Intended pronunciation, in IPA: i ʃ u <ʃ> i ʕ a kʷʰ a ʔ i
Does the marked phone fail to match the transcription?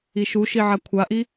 no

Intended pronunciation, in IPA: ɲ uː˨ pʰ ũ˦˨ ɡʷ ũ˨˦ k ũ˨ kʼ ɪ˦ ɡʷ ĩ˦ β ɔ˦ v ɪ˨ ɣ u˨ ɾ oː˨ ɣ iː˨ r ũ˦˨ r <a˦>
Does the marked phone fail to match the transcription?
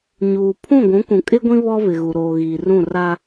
no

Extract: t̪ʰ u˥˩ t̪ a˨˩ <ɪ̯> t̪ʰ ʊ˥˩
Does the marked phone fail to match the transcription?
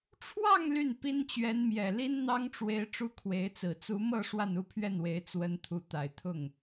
no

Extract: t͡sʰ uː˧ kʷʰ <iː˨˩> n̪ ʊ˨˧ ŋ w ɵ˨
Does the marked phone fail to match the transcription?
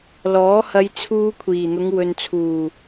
no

